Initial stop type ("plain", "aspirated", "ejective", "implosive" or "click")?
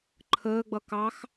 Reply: click